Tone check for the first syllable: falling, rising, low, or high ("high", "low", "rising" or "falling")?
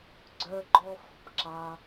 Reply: high